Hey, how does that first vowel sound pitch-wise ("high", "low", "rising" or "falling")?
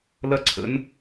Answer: high